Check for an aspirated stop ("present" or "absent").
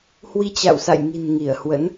absent